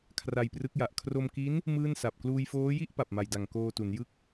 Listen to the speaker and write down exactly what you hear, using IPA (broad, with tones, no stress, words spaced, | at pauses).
kʰra˧jprɯ˦˥k̚ja˨˩ʔ kʰro˧mki˦˥n | mɯː˥˩nsa˨˩p̚ kluː˧jfoː˦˥ji˥˩ʔ pa˨˩p̚ma˨˩jda˨˩ŋ koː˧ tu˩˦njɯ˥˩k̚